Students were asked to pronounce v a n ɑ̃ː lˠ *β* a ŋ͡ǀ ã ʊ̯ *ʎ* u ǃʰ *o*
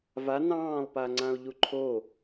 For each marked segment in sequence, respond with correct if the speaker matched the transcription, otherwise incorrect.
incorrect: p, correct, correct

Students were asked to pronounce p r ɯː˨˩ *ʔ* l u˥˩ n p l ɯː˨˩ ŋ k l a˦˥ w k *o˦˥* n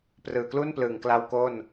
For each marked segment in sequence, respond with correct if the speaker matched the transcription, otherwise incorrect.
incorrect: k, incorrect: o˥˩

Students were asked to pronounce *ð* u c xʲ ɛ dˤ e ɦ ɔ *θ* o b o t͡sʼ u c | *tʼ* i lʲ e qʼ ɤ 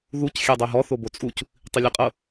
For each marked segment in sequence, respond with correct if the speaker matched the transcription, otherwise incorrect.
correct, correct, incorrect: tˤ

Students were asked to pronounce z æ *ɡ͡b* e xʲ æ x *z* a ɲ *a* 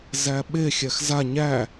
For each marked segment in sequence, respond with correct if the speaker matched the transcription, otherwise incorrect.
incorrect: ɓ, correct, incorrect: æ

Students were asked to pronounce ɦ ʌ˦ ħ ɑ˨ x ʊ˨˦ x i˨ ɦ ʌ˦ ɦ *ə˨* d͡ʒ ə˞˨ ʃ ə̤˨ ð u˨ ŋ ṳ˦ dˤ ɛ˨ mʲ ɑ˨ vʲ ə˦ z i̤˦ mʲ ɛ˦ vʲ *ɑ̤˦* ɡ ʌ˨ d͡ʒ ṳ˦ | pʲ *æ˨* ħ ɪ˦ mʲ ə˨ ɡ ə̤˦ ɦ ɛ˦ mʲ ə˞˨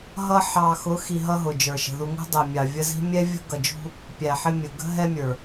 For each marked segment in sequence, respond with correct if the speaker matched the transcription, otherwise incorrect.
incorrect: ʊ˨, incorrect: ə̤˦, correct

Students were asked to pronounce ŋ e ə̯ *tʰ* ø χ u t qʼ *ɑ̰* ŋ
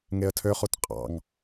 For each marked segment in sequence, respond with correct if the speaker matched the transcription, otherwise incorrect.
correct, correct

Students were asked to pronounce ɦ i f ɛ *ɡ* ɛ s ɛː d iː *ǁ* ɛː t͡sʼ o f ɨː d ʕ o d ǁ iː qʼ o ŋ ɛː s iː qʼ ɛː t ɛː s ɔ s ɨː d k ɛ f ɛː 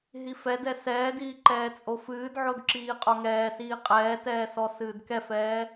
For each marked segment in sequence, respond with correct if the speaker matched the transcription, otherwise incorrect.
incorrect: d, incorrect: ǃ

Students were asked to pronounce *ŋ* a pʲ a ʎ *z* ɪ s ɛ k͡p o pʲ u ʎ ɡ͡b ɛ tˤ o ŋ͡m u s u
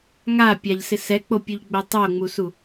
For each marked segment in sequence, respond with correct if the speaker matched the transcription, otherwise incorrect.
correct, incorrect: s

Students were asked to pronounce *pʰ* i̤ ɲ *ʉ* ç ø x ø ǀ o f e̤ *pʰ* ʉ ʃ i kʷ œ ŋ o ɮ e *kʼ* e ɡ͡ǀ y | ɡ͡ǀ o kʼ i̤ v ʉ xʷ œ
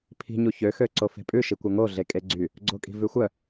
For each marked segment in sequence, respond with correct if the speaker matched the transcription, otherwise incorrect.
correct, incorrect: u, incorrect: pʼ, correct

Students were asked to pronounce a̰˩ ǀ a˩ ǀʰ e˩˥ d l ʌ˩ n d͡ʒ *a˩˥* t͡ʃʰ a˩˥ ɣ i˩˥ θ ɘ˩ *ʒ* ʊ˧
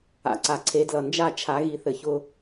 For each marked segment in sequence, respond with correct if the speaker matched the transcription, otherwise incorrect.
incorrect: a˥˩, incorrect: ç

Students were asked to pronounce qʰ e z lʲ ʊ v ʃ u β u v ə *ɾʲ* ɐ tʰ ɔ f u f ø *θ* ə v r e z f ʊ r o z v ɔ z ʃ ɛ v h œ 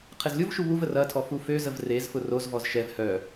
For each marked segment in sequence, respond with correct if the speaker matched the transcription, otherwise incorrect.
incorrect: r, incorrect: z

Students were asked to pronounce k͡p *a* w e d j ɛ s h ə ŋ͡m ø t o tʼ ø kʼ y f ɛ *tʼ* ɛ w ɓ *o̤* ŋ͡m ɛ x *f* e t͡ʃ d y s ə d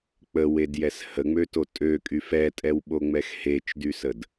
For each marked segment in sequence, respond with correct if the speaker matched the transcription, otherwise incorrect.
incorrect: ə, correct, incorrect: o, incorrect: h

